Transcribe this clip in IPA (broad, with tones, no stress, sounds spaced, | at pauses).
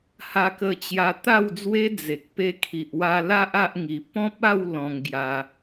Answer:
h a˧ k ə˧ t͡ɕ j a˧ t̪ a˥˧ w d͡z w e˦ d͡z e˨ k̚ p e˧ kʰ i˨ ʔ w a˧ l a˦ ʔ a˦ ʔ ŋ i˧ p ɔ̃˦ p̚ a˥˧ w l ɔ̃˧ ŋ ɡ j a˧